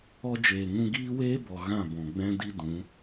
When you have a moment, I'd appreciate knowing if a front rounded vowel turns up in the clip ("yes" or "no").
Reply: no